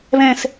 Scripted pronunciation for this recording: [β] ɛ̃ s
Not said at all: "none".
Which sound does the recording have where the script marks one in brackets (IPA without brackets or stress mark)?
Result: β